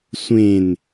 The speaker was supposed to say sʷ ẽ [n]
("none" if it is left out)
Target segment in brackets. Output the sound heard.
n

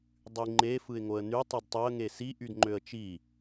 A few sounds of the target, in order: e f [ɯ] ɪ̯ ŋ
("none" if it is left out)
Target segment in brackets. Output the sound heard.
ɯ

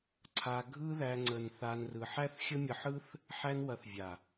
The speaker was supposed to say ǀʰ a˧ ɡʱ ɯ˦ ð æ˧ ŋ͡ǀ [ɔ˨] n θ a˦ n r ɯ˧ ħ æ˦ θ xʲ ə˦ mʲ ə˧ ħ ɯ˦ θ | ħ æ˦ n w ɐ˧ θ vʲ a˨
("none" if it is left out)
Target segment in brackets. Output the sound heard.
ə˨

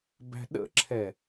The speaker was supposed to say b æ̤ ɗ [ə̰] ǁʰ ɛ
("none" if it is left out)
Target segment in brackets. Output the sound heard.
ə̰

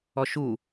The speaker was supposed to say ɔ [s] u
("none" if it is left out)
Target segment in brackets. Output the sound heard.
ʃ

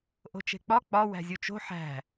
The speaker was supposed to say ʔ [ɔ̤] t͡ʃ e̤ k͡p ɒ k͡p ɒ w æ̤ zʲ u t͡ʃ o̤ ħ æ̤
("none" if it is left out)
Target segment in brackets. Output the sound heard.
o̤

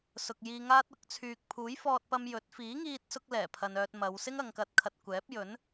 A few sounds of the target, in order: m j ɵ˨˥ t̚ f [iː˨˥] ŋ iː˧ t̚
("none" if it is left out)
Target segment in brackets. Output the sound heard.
iː˨˥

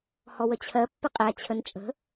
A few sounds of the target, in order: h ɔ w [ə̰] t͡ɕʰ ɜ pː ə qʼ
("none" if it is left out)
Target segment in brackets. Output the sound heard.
ə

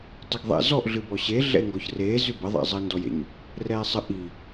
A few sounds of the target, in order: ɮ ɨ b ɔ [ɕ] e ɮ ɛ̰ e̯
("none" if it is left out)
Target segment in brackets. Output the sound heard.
ɕ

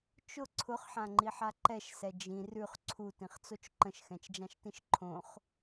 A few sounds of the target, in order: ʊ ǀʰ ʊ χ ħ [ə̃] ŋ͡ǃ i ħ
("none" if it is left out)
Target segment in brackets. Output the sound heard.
ã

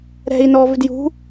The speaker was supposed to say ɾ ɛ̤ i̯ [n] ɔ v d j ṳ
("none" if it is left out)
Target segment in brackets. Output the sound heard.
n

